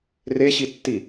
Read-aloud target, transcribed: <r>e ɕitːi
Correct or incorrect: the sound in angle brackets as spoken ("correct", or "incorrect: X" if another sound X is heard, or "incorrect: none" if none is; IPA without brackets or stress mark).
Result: correct